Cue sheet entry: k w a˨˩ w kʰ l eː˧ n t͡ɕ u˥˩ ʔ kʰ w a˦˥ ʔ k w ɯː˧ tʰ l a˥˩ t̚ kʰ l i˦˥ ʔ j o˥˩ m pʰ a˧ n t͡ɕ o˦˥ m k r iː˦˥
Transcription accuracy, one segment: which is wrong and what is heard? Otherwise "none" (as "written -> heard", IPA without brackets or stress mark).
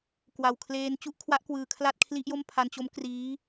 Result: tʰ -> kʰ